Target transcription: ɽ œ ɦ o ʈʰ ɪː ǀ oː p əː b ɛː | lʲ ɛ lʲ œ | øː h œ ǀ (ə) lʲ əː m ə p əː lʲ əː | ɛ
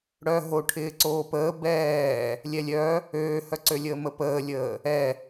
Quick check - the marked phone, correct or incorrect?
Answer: incorrect: ø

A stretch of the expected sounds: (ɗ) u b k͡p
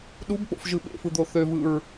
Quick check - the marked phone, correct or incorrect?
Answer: correct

